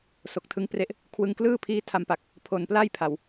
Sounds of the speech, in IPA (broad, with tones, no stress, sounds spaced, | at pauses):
s o˨˩ k̚ tʰ ɯ˦˥ ŋ p r e˦˥ ʔ | kʰ w ɯ˧ ŋ k l ɯː˥˩ pʰ iː˦˥ tʰ a˧ m p a˨˩ k̚ | pʰ o˨˩ n p l aː˥˩ j pʰ a˨˩ w